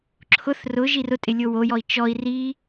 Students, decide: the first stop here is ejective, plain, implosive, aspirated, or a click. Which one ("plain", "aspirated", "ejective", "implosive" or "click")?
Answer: click